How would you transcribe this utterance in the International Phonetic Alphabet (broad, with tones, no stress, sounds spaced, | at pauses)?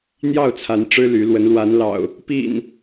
n̪ j ɑ˥˨ ʊ̯ t͡sʰ a˨˦ n ʈ͡ʂ ɻ̩˦ l y˨˦ l w ə˨˦ n l w a˨˦ n l ɑ̰˨˩ ʊ̯ | p ḭ˨˩ n